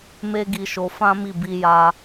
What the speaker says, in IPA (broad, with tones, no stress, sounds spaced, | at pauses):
m e˦ ɡ i˧ ʃ o˧ f ã˦ m i˦˨ b i˧ j a˧